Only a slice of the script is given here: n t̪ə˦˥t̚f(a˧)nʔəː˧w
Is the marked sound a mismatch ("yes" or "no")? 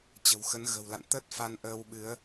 no